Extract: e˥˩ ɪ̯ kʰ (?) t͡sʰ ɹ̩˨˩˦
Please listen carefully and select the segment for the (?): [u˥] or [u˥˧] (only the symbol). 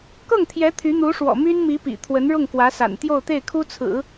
u˥